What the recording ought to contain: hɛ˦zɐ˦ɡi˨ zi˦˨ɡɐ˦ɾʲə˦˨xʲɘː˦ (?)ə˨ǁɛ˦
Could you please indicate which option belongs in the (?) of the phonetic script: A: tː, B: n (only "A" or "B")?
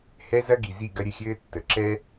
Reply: A